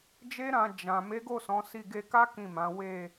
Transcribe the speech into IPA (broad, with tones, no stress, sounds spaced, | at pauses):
d͡ʒ e˦ ɾ ã˧ d͡ʒ ã˨ m e˨˦ ɡ o˦˨ s ɔ̃˨˦ s i˦˨ ɡ e˧ k a˦ k ĩ˦˨ m ã˨˦ w e˦˨